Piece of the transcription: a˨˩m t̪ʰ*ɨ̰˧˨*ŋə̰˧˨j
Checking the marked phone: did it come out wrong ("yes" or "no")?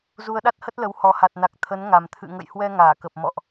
no